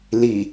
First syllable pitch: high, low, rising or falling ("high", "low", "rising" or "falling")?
low